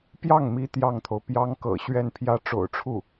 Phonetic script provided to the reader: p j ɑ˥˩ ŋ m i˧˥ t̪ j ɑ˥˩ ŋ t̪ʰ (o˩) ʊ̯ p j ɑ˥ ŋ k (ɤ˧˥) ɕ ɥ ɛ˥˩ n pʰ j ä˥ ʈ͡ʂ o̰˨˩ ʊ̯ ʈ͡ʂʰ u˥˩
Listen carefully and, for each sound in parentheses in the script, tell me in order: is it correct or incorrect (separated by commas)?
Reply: correct, incorrect